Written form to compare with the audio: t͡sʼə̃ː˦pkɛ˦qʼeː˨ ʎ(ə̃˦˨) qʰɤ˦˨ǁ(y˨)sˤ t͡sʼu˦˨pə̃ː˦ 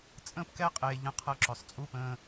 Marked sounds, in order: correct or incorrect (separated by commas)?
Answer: correct, incorrect